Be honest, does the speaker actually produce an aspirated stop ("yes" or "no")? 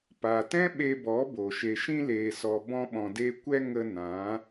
no